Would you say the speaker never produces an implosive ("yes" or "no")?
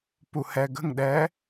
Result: no